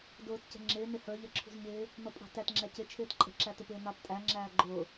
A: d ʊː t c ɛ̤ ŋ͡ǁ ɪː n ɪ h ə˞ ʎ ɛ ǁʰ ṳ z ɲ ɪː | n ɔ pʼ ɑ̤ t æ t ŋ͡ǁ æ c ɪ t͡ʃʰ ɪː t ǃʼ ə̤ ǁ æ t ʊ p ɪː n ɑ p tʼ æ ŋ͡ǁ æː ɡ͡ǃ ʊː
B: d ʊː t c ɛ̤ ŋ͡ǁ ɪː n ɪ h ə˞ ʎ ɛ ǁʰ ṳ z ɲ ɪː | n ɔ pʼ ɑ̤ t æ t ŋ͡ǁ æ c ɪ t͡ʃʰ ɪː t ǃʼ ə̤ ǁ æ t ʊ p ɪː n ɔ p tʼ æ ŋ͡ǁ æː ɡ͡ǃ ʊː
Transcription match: A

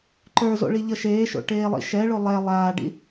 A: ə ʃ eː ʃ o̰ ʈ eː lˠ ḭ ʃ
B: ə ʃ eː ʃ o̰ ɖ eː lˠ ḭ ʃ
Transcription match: A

